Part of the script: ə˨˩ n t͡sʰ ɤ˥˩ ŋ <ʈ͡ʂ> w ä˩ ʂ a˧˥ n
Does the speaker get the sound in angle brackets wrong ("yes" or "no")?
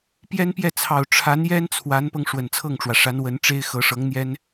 no